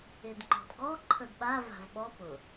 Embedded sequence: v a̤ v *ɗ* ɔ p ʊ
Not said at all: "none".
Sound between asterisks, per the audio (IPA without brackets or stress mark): ɓ